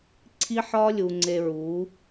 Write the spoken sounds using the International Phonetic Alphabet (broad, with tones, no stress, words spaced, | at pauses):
ǀʰi˦ħɒ˦lʲu˨ ŋ͡ǀe˨ɹu˨˦